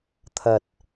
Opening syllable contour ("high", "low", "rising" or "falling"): low